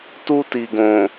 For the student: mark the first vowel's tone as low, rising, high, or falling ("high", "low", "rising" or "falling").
high